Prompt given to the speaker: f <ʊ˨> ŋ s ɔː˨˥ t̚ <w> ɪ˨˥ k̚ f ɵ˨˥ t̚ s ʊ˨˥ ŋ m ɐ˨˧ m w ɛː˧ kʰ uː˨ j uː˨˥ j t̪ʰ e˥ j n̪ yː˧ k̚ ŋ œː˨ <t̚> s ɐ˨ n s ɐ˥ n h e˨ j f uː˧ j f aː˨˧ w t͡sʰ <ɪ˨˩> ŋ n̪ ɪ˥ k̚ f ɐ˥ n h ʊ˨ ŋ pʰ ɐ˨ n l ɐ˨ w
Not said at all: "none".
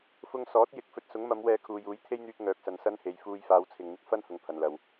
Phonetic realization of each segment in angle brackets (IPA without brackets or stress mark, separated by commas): ʊ˧, j, k̚, ɪ˨